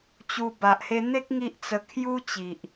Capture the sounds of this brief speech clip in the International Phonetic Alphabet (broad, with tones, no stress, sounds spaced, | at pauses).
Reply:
t͡ɕ u˧ b a˨ ʔ h e˧ n̪ e˦ k̚ ŋ i˦ ʔ t͡s ə˧ kʰ j u˦ t͡ɕ i˨ ʔ